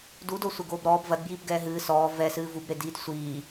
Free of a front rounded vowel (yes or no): yes